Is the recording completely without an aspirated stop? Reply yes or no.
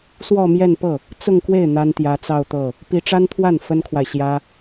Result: no